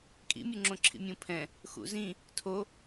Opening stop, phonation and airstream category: ejective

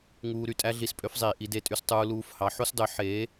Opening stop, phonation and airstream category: ejective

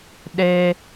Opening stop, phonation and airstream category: implosive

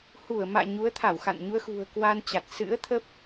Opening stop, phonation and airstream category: aspirated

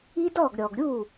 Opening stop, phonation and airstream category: plain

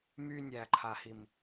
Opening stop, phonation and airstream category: click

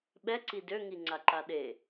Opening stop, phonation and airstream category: implosive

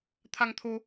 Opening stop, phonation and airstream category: aspirated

